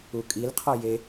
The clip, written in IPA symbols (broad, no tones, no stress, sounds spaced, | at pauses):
u kʼ i l qʰ ɔ j e